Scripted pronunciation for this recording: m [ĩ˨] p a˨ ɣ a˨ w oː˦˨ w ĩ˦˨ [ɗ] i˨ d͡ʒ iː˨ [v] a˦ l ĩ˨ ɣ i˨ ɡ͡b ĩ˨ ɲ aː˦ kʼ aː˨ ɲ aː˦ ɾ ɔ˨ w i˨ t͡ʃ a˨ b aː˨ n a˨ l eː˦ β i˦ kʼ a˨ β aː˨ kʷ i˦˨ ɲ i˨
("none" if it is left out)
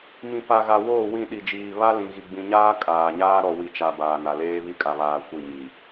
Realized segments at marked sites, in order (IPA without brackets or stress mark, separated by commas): ĩ˨, ɗ, β